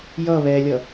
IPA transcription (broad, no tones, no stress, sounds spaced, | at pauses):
j ʌ β ɛ lʲ ʌ